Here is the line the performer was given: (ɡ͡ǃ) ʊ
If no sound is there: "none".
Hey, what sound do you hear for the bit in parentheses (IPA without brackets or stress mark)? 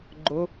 ɡ͡ǃ